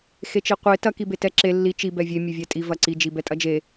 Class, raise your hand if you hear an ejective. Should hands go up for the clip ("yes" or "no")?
yes